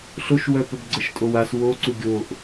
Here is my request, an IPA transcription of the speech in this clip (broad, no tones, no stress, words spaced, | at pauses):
ɬoʃwœpœb ɡ͡ǀəʃtʼowas woǀu ɡʲoʔ